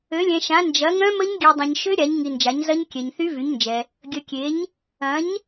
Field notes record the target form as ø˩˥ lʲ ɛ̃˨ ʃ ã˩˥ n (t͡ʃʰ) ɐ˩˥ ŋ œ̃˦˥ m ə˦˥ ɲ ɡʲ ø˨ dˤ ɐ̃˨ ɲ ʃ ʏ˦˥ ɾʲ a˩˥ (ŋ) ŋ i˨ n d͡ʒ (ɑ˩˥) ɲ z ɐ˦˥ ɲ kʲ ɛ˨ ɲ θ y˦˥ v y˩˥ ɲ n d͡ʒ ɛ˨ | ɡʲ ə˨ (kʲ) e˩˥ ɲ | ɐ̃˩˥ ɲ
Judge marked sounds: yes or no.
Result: no, no, no, yes

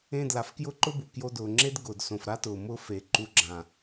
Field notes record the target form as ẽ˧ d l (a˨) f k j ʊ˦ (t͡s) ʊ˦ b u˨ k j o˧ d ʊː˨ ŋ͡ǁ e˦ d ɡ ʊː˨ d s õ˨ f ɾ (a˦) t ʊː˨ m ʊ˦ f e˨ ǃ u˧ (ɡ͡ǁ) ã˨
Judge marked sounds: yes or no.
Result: yes, no, yes, yes

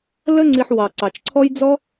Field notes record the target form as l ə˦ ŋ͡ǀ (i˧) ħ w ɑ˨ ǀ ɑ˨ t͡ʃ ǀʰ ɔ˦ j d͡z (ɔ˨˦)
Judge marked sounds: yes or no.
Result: yes, no

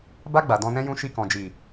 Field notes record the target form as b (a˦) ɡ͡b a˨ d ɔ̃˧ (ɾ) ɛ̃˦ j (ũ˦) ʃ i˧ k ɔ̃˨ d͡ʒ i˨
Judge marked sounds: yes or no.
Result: no, no, yes

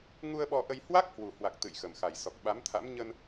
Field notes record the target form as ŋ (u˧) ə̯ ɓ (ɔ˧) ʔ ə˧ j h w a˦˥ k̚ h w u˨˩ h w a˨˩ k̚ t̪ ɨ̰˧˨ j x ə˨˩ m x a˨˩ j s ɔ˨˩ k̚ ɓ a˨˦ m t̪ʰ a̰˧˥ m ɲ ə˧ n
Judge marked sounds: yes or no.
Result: yes, yes

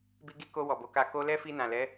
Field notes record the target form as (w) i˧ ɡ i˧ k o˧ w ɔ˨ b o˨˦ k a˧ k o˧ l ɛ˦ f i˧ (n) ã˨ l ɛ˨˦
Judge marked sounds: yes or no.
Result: no, yes

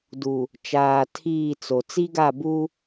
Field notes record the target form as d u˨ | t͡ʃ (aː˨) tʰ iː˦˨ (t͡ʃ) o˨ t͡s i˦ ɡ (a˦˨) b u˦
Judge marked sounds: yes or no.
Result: yes, no, yes

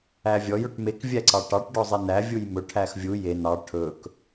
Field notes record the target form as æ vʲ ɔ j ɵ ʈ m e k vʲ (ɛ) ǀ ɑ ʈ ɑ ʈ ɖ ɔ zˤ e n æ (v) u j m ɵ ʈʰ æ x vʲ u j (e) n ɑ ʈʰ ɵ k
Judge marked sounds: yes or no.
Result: no, no, yes

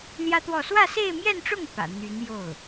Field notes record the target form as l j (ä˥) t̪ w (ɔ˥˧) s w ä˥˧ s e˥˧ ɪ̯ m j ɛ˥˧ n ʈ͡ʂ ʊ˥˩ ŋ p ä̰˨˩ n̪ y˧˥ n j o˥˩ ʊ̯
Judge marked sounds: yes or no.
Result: yes, yes

